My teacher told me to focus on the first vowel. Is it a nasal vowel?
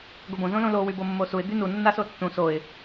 no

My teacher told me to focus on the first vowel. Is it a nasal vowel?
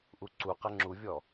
no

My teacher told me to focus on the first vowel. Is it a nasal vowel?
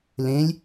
yes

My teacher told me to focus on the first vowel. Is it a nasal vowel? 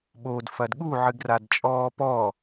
no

